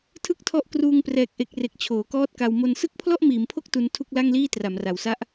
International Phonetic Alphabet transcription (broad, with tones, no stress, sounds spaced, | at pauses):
tʰ ɯ˥˩ k̚ tʰ ɔ˦˥ ʔ k r uː˧ ŋ p r ɛː˨˩ k̚ ʔ e˨˩ k̚ r e˨˩ k̚ t͡ɕʰ oː˩˦ k ɔː˥˩ t̚ k a˧ w m o˧ n s ɯ˦˥ k̚ pʰ l ɔ˥˩ ʔ m iː˩˦ m pʰ o˦˥ k̚ t u˦˥ n tʰ u˥˩ k̚ l a˥˩ ŋ l iː˥˩ t r a˩˦ m r a˨˩ w s a˦˥ ʔ